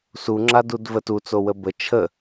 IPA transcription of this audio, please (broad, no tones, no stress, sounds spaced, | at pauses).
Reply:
s u ŋ͡ǁ a d u d v ə t u t͡s o w ə b ə t͡ʃʰ ə